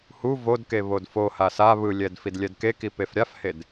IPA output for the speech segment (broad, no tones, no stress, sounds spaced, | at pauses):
h u v o d k e β o d f o h a s a β ɯ lʲ ɛ d f i d lʲ ɛ d k e k i p e f ɾʲ a f h e d